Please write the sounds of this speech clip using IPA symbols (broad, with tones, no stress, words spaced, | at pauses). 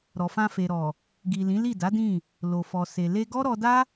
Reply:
ɾɔ˨fã˧fe˨ɾɔ˨ | ɡi˨lĩ˨˦li˦˨ da˨˦dĩ˦˨ | lo˨fɔ˨se˨ le˧ɡɔ˦ ɾɔ˧da˦